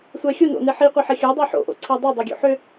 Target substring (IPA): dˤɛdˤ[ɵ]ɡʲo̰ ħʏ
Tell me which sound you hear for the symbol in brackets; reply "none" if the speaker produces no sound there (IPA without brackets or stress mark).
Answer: o